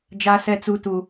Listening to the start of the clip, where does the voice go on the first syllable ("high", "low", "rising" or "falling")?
high